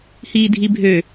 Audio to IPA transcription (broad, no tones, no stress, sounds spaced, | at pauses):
h iː dʱ i bʱ ø